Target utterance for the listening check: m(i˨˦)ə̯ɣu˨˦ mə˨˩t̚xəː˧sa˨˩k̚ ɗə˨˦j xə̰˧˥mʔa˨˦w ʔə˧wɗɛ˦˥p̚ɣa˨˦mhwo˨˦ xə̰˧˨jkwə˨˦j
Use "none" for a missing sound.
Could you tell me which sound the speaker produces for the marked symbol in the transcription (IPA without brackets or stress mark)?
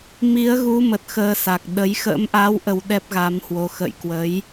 i˨˦